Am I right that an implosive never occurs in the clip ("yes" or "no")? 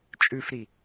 yes